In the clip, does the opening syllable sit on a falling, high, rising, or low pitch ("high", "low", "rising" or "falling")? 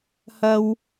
high